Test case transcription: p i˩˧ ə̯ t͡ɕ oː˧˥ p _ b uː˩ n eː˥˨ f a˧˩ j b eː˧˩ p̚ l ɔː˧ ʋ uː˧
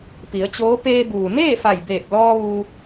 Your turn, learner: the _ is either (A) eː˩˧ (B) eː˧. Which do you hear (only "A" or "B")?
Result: B